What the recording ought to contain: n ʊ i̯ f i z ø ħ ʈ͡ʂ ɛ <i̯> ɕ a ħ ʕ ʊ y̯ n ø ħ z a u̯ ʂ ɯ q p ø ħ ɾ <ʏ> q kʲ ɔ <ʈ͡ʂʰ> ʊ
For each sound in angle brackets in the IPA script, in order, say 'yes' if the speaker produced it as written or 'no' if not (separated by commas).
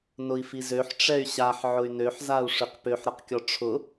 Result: no, no, yes